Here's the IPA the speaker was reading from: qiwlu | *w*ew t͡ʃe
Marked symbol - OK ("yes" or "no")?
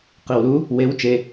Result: yes